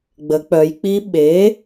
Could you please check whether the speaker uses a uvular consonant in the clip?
no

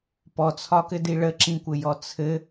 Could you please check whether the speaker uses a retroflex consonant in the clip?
yes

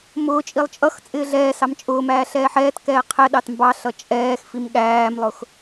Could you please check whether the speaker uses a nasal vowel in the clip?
no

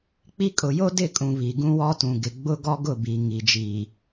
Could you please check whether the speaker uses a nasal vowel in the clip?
yes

